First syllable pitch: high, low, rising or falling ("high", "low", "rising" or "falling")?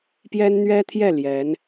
high